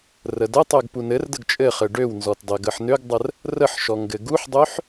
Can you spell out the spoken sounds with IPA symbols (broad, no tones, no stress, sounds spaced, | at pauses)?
r ə d ə tˤ ø ɡ p u n ɘ r d ə ɡ t͡ʃʼ ɘ χ ɘ ɖ ø w n z ɔ t dˤ ɘ ɡ ə ħ n ø ɡ dˤ ə r | r ə ħ ʃ ɔ ŋ ɡ ɘ ɡ u ħ dˤ ø ħ